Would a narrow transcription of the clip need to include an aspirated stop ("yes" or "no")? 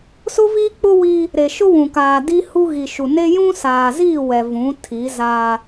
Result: yes